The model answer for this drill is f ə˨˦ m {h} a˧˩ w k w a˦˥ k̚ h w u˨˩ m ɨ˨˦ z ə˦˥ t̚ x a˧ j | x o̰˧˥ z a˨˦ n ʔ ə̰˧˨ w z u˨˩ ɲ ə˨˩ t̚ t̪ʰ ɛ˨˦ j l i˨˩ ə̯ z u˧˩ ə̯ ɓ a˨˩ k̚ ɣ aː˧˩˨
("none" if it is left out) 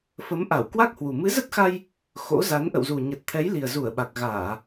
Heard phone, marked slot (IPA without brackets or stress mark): ʔ